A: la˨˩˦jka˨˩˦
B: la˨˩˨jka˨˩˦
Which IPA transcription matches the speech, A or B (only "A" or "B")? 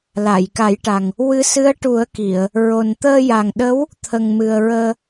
B